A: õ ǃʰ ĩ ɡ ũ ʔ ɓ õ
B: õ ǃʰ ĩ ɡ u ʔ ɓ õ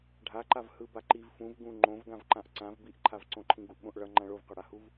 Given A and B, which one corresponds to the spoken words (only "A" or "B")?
B